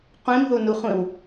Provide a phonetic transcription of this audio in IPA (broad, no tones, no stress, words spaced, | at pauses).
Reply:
qʷĩmðunuχʷĩw